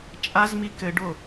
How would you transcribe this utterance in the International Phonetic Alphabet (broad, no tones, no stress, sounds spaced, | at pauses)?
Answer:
t͡ʃʼ a z m i k ɘ ɖ o